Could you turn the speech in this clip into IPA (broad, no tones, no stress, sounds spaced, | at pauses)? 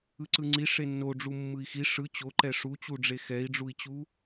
ɯ ǀ ɯ ŋ͡ǀ i ʂ e nː o ɖ͡ʐ u mː ɯ i̯ x i ʂ ɯ t͡ɕ o ǃ ɛ ʂ u t͡ɕ u ɖ͡ʐ e x ɛ i̯ ɖ͡ʐ u i̯ t͡ɕ u